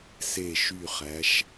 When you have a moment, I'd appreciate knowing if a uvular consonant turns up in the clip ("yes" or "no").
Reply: yes